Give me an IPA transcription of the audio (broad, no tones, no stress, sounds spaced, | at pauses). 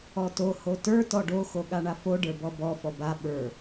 ɔ t o h o t ə˞ t ɔ ɖ o x o ɠ a ɳ a f o ɖ ə˞ b ɔ b ɔ f ɔ b a ɓ ə˞